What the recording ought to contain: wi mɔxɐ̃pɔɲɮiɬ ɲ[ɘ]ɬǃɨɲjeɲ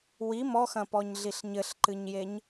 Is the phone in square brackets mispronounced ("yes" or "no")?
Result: no